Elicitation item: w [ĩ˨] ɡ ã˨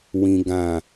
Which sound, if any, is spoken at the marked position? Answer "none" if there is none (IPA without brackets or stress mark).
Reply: ĩ˨